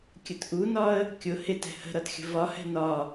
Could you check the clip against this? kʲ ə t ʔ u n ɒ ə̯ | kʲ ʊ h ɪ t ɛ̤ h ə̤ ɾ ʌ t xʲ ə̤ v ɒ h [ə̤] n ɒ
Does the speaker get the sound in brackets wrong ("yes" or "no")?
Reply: yes